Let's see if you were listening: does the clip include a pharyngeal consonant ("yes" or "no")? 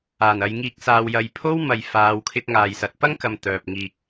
no